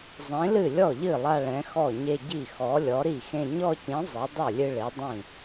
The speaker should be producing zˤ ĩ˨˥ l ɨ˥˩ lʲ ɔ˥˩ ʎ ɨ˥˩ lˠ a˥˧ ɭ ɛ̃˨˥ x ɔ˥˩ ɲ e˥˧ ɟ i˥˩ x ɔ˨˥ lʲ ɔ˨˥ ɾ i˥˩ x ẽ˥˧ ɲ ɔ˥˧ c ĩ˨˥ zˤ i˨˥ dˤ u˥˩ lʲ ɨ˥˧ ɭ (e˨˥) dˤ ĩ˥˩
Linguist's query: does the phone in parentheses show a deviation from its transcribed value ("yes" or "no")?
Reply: no